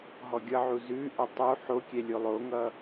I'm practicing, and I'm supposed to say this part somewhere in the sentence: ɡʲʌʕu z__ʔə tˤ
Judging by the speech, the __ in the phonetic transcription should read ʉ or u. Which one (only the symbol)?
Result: ʉ